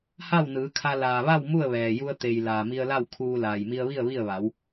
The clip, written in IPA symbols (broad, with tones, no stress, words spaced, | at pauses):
ha˥˨wnɯː˩˧kʰa˧ laː˩ʋa˥˨w mu˥˨ə̯ʋɛː˩ju˧ə̯ t̪e˩j laː˩mi˧ə̯la˥˨w kʰuː˧ laː˩jmi˧ə̯ʋi˥˨ə̯ ʋi˥˨ə̯ʋa˩˧w